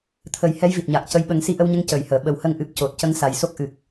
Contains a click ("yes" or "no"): no